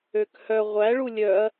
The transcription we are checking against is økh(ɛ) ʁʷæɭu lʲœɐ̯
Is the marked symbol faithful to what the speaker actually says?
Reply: no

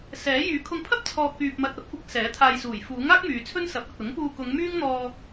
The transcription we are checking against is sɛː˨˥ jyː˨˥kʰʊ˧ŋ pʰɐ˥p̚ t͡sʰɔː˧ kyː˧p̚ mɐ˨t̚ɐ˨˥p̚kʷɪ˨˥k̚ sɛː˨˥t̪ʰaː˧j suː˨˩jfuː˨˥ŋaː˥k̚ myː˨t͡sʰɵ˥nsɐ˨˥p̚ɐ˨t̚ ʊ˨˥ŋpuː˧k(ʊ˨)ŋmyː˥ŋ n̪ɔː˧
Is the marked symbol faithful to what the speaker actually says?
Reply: no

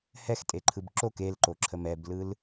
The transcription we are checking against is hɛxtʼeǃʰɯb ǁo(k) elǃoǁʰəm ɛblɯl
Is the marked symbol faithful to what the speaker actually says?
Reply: yes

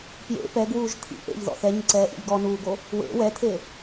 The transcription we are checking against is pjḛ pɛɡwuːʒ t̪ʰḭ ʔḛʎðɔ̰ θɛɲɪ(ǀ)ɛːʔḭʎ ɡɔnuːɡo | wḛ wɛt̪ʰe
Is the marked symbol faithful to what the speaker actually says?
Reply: yes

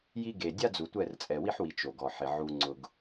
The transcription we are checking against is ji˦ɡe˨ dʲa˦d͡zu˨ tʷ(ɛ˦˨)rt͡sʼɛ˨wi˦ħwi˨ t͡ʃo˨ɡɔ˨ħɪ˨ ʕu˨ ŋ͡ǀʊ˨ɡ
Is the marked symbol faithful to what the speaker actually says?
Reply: yes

